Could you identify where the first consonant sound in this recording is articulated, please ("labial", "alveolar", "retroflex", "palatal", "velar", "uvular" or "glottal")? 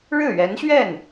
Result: retroflex